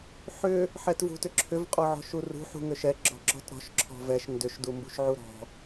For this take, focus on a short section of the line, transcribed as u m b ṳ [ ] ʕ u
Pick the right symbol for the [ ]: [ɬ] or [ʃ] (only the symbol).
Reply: ʃ